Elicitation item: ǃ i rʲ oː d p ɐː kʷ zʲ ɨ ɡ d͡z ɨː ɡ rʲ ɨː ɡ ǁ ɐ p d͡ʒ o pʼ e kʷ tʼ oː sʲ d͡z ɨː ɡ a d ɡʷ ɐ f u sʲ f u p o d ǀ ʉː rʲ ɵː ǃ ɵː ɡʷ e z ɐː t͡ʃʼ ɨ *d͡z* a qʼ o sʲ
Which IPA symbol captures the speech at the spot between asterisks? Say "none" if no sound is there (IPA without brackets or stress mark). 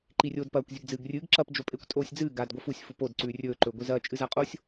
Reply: z